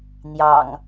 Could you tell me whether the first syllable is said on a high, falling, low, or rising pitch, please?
low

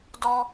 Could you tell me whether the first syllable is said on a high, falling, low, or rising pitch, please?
high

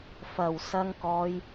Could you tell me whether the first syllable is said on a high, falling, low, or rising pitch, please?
low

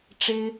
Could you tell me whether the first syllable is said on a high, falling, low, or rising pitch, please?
high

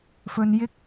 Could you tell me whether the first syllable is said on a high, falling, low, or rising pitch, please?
low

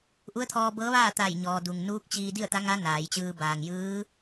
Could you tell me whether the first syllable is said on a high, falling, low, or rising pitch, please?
rising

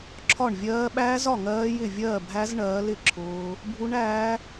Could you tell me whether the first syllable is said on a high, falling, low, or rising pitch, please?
falling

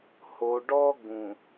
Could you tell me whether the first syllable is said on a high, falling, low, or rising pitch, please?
low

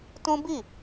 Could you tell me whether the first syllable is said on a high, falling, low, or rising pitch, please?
high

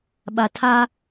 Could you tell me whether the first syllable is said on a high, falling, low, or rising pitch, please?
low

